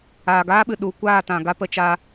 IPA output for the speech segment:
aː˨ ɡ aː˦ ɓ ɨ˨ ɗ u˨ kʷ aː˦˨ t ã˨ ɡ a˦ p ə˧ t͡ʃ a˧

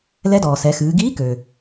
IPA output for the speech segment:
l ɛ˧˥ d ɔː˩ s ɛ˩˧ x ɨː˩˧ ɡ iː˧˥ k ø˩

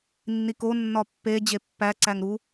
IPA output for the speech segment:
nː i k o nː ɒ pː e d͡ʑ e pː æ ǀ æ ŋ ɾ u

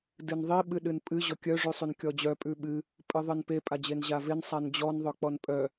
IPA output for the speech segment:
d ɨ n ðˤ i ɓ ɨ ɗ ɨ n pʼ ɨ ʑ ɔ kʲ œ ʐ ʉ sˤ ʉ n kʲ ɔ d͡ʑ œ pʼ ʉ ɓ ɨ | pʼ ɨ ðˤ ɨ n p e pʼ a d͡ʑ e n ʑ a v e n sˤ a n d͡ʑ ɔ n ðˤ œ k͡p ɔ n pʼ œ

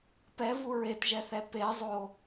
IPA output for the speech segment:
p ɛ v u ɹ e t ʒ ɛ θ ɛ p e zˤ o

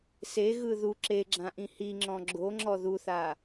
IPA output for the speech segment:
s e ɣ ɯ ð u ǁ e ɡ͡ǁ ã ʔ ĩ h i ŋ͡ǁ ɔ̃ ɡ͡ǁ o ŋ͡ǁ ɔ ð u θ a

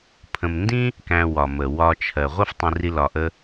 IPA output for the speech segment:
pʰ ə̃˨ m n d ĩ˥ | k æ̃˨ w ɒ˩ m ə˩ w ɒ˨ t͡ʃʰ ɜ˩ ʁʷ ə˦ f tˤ ĩ˨ r i˨ l ɒ˩ ʔ ə˨

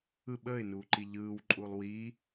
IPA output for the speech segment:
ɯ ɓ əː ɪ̯ n uː ǃ i ʎ ɯː w ǃʼ u lˠ w i

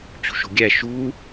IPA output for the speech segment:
t͡ɕ ṳ ʃ o̤ ɡʲ æ ʃ u

